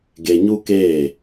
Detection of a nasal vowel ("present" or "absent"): absent